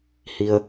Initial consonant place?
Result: glottal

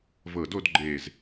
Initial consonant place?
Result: labial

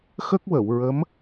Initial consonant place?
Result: velar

